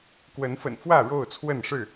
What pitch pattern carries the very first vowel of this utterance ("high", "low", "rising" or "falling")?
rising